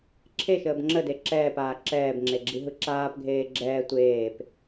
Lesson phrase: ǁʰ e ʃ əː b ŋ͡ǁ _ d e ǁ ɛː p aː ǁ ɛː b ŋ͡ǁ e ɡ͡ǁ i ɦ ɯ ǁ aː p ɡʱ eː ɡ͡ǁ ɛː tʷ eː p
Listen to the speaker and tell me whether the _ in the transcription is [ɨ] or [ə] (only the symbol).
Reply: ə